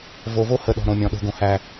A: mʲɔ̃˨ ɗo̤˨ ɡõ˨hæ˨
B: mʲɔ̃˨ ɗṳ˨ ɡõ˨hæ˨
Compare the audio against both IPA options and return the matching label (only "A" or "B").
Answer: A